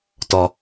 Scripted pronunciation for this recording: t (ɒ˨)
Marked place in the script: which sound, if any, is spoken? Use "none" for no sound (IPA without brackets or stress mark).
ɒ˨